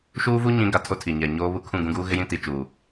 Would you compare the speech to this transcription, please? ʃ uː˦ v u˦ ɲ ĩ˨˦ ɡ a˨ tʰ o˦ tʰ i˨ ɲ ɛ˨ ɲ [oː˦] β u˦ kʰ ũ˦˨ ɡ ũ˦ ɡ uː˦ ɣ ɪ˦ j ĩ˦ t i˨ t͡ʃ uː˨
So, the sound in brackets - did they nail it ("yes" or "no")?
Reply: yes